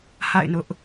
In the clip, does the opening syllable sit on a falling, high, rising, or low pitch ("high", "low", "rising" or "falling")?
falling